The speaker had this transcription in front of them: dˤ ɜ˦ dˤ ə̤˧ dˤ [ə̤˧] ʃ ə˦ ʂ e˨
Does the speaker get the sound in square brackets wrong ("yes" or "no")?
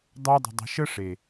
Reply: no